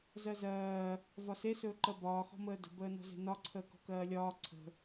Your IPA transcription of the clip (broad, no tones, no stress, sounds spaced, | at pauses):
z ɜ z ɜː | v ɒ s e s ɵː ǃ ɜ b ɒː x ɔ̤ m əː d ə̤ b əː n ɔ̤ z e̤ n ɒ ǀʰ əː k ɔ̤ k ɜː lʲ ɒː ǀʰ ə̤